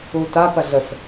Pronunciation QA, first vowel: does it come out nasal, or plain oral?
oral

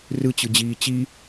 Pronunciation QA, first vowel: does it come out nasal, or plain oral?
oral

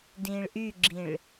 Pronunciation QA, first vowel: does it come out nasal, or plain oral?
nasal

